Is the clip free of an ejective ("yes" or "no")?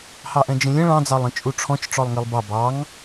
no